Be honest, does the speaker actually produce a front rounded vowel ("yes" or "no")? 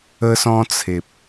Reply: no